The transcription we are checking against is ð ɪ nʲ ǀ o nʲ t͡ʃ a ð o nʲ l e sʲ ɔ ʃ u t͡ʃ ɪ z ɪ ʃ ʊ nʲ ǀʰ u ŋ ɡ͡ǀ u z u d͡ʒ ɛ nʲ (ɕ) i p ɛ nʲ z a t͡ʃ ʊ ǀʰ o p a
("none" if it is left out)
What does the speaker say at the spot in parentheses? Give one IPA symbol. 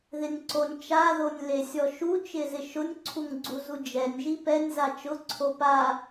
ʒ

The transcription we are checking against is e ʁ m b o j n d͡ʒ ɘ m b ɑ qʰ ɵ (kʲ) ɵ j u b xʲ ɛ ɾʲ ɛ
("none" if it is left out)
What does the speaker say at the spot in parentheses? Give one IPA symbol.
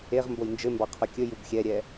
kʲ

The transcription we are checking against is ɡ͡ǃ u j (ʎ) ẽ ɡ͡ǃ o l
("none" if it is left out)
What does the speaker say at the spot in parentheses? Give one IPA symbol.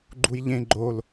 ʎ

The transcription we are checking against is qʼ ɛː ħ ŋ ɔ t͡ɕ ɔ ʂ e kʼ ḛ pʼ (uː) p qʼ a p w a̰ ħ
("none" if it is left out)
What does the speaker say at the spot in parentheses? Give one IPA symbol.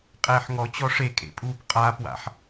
uː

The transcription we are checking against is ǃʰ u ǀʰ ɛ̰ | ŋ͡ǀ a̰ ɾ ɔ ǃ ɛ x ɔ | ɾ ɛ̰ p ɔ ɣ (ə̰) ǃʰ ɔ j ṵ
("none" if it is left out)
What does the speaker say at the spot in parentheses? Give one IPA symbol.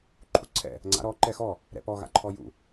a̰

